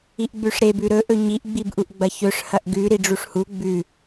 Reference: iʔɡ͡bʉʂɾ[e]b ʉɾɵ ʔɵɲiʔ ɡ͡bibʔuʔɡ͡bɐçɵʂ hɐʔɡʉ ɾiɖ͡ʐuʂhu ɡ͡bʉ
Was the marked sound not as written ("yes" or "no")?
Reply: no